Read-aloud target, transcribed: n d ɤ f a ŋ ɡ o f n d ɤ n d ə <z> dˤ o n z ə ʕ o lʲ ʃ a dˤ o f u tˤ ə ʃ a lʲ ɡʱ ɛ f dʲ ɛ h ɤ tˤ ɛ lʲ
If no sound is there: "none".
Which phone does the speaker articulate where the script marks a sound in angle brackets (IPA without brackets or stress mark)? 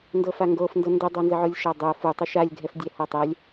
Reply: none